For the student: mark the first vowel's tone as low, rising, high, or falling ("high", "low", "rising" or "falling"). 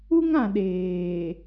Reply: high